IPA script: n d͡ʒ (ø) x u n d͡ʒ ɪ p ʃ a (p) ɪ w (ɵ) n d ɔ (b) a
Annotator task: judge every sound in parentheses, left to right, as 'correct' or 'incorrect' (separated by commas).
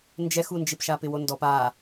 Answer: incorrect, correct, incorrect, incorrect